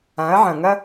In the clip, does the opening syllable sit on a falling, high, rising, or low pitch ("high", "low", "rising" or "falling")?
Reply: rising